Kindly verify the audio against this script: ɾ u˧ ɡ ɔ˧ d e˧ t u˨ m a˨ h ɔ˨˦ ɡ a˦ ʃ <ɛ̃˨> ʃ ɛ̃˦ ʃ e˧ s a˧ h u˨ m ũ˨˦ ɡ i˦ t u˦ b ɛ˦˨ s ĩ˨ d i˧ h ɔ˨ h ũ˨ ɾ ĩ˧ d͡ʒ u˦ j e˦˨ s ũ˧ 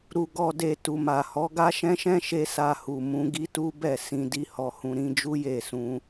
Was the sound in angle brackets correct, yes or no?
no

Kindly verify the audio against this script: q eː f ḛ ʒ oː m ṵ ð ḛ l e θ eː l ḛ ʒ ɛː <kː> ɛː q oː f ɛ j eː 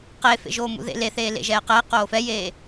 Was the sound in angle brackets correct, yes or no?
no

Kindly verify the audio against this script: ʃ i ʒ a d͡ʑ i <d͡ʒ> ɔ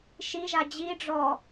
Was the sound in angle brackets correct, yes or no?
no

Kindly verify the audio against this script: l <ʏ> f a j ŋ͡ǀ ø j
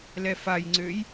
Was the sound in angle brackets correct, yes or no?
no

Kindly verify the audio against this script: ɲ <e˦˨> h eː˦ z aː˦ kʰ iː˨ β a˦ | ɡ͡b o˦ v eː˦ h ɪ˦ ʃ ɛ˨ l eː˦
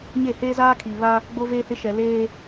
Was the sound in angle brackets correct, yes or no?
yes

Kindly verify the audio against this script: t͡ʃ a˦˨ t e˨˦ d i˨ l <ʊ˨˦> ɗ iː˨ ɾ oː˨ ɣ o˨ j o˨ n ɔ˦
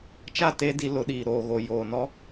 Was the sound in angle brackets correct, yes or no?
yes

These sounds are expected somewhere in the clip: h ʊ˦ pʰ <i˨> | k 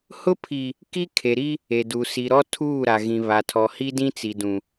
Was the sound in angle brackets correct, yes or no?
yes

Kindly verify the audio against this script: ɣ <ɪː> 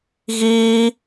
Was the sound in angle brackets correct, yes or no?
no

